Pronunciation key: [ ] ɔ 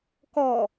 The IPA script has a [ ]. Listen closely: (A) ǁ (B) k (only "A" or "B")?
B